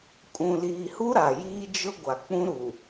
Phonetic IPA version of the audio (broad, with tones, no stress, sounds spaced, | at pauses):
kʼ ũ˨ l iː˨ h u˦ ɾ a˨ j iː˦ d͡ʒ ʊ˦ ɡʷ a˨ k͡p ũ˦ ɾ u˨